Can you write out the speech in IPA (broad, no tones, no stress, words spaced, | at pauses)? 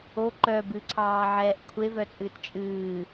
o ǃœ bɨǀʰɑːʕɛːʔ kʷʰevœt͡sʼɨːt t͡ʃʼɨː